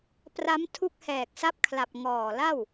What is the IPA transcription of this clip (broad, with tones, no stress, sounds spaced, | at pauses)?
p r a˦˥ m tʰ u˦˥ k̚ h ɛː˨˩ k̚ s a˦˥ p̚ kʰ l a˨˩ p̚ ŋ ɔː˨˩ l a˥˩ w